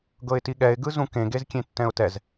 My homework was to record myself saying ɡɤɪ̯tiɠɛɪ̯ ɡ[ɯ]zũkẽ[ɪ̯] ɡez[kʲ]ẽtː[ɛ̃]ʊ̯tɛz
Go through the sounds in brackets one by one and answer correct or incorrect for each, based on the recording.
correct, incorrect, correct, correct

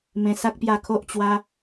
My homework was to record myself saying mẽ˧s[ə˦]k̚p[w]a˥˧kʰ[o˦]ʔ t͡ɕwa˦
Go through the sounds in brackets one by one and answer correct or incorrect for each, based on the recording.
incorrect, incorrect, correct

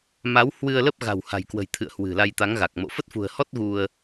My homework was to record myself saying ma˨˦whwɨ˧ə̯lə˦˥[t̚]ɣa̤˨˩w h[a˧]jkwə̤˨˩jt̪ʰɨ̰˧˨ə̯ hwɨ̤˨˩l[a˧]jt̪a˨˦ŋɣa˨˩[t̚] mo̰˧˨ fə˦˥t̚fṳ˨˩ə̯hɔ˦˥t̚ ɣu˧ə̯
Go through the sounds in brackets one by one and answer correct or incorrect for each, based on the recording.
incorrect, incorrect, correct, incorrect

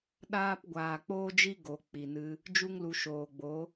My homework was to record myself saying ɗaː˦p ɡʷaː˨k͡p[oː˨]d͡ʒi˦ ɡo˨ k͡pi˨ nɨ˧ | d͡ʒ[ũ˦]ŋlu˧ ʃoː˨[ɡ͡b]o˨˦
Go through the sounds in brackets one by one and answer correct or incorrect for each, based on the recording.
incorrect, incorrect, correct

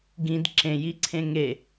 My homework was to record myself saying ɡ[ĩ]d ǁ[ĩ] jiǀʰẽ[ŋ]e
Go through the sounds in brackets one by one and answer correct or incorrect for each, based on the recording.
correct, incorrect, correct

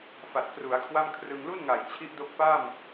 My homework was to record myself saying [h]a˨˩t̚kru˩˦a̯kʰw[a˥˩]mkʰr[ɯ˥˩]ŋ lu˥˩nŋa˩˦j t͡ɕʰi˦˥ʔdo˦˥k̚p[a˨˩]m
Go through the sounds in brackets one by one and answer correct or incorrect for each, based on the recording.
incorrect, correct, incorrect, incorrect

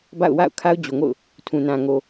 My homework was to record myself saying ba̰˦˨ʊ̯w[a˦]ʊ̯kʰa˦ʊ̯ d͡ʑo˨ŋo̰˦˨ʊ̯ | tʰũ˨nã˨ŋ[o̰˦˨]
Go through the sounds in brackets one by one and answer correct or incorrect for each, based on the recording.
incorrect, incorrect

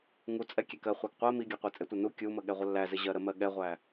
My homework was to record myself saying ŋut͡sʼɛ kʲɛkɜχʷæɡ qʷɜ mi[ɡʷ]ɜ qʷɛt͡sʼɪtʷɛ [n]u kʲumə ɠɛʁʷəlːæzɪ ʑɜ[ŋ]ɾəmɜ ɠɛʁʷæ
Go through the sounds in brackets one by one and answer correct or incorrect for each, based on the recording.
incorrect, correct, incorrect

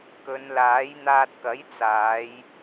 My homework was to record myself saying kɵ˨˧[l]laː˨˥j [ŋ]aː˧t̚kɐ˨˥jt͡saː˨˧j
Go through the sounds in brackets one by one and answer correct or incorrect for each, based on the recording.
incorrect, incorrect

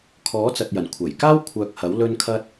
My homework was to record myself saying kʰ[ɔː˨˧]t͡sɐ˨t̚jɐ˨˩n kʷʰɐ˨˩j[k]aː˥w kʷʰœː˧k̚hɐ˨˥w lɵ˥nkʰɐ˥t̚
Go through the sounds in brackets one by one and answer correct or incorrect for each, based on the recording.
incorrect, correct

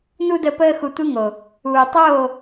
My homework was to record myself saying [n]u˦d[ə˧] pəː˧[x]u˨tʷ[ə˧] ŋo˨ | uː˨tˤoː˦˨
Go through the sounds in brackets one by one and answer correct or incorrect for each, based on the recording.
correct, correct, correct, incorrect

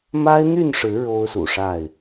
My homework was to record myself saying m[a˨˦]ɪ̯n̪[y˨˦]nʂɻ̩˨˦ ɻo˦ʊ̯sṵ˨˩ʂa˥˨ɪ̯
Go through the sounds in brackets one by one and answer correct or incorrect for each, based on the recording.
incorrect, incorrect

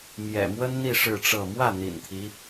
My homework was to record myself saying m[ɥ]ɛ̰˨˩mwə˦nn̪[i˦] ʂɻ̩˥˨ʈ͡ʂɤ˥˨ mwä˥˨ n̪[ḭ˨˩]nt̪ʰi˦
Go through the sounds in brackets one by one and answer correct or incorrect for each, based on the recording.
incorrect, incorrect, correct

